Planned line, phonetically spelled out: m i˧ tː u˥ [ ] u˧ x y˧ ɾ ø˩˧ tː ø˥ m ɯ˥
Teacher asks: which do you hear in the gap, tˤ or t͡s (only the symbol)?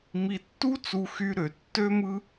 t͡s